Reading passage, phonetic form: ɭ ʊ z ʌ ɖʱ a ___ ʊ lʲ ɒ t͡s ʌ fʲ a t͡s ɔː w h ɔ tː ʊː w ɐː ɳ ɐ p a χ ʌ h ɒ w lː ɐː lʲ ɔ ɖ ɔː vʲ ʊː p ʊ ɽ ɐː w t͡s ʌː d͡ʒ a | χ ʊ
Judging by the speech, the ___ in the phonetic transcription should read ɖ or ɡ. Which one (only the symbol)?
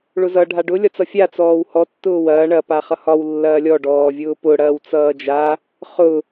ɖ